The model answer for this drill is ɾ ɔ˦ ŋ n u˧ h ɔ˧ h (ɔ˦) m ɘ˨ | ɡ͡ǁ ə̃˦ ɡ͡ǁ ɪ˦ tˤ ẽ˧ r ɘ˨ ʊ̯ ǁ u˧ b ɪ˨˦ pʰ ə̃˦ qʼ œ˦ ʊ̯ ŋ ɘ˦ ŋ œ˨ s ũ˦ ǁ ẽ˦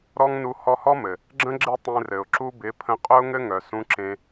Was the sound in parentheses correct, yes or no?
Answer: yes